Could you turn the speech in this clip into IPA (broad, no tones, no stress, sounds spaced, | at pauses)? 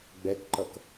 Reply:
ɡ͡b ɛ k ǃ ʌ k